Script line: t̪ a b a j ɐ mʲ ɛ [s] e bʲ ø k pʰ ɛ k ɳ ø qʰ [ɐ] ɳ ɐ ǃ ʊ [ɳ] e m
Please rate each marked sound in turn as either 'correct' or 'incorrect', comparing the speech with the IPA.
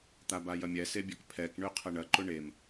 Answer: correct, correct, correct

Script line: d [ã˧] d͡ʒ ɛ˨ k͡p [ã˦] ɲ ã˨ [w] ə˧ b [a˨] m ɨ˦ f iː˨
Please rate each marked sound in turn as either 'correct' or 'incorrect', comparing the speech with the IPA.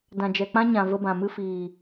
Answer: incorrect: ã˨, correct, incorrect: v, incorrect: ã˨

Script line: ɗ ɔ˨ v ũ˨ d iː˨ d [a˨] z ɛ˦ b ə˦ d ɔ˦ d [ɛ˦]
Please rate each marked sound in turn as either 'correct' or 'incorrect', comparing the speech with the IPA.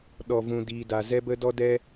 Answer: correct, correct

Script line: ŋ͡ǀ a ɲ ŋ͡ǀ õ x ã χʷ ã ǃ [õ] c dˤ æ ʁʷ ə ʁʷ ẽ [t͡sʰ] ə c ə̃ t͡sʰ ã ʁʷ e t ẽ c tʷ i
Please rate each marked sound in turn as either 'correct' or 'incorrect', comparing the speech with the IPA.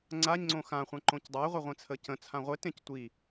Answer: correct, correct

